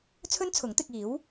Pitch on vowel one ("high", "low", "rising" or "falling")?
high